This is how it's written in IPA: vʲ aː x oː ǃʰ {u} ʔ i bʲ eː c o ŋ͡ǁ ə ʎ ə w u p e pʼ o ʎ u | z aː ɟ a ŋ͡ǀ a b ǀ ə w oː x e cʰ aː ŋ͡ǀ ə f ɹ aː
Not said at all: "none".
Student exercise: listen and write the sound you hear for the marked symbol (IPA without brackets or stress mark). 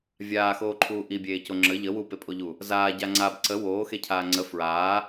uː